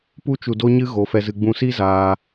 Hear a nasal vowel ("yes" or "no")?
yes